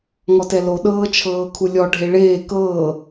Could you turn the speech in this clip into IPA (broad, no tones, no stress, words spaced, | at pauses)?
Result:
ŋɔtɛlo ɗɤːt͡ʃʰɤːkʰulʲɔ ɖʱeɭeː kɤː